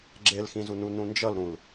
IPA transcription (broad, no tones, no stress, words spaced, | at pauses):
ɡ͡ǁelxĩzunu nũnd͡ʒʌlɾũl